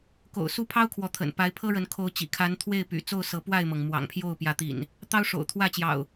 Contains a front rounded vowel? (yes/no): yes